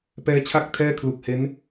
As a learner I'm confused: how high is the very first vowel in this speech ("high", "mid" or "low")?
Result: mid